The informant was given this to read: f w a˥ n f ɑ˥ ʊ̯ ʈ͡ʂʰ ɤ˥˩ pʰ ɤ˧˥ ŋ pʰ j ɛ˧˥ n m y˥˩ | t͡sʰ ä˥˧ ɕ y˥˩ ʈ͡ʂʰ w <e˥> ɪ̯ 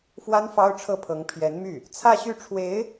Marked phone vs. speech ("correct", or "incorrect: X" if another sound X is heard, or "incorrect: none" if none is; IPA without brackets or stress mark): incorrect: e˧˥